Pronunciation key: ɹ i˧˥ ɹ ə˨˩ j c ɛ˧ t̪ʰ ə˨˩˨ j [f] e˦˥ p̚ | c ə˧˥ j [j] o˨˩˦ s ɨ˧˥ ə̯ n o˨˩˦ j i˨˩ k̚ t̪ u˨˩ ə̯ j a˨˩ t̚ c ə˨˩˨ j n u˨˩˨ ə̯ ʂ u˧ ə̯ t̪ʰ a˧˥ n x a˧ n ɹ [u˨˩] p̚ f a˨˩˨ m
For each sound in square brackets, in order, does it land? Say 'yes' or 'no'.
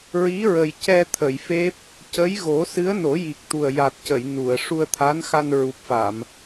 yes, no, yes

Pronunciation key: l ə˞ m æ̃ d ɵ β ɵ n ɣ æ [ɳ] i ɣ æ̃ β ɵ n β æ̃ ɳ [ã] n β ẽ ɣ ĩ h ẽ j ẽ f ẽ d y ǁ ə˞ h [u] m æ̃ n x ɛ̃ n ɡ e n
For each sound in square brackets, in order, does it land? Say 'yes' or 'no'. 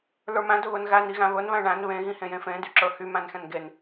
no, no, no

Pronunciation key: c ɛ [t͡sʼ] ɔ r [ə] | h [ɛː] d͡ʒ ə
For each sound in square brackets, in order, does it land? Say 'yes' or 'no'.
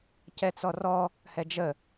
no, no, no

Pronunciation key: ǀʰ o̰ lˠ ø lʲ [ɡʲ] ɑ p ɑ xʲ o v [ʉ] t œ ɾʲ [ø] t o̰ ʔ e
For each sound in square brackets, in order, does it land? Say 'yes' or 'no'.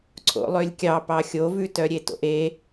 no, yes, no

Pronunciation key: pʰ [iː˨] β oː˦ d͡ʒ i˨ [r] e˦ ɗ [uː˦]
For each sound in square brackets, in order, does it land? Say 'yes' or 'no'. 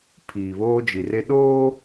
yes, yes, no

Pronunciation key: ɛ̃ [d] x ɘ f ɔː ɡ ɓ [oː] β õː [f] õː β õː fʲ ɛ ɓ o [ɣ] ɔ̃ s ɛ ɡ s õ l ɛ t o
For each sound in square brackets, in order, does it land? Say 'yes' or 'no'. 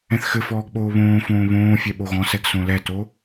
no, yes, yes, yes

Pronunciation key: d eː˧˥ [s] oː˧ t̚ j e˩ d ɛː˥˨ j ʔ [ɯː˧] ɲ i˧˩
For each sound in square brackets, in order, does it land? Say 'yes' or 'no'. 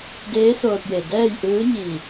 yes, no

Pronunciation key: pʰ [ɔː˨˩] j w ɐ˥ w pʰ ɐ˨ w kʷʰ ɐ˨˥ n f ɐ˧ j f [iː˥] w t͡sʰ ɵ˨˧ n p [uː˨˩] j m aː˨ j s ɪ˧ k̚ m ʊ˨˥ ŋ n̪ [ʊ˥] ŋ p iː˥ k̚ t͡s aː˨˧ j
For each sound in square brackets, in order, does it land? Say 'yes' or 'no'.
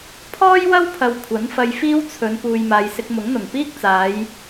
no, yes, no, no

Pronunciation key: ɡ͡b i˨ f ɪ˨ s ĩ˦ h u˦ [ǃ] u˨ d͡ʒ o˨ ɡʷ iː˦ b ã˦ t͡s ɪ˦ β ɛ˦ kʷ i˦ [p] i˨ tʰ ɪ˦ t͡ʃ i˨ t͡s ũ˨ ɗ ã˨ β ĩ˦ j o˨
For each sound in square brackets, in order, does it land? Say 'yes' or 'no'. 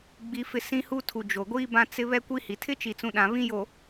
no, no

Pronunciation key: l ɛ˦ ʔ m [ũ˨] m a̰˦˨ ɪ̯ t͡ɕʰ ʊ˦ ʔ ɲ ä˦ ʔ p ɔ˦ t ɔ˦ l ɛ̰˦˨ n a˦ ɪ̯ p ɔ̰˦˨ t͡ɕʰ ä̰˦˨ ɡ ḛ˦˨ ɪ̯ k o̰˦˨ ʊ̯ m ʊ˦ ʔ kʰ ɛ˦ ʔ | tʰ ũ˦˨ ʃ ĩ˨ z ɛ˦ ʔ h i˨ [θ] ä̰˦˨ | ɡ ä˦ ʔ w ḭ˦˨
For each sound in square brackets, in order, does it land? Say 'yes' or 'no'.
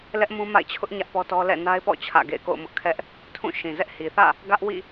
no, yes

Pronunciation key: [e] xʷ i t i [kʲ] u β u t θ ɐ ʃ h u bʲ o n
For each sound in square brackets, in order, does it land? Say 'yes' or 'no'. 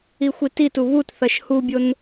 no, no

